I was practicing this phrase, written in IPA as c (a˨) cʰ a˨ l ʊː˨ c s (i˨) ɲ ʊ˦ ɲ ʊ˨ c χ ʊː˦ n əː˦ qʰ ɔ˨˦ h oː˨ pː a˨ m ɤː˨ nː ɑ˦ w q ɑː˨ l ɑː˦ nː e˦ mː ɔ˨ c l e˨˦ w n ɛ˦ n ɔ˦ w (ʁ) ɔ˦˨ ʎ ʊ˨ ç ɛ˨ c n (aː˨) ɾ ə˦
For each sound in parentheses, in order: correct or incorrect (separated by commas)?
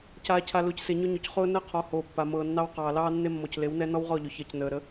incorrect, incorrect, correct, incorrect